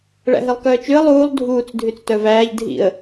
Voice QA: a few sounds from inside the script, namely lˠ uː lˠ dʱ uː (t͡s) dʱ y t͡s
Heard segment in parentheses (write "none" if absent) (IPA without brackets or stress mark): t͡s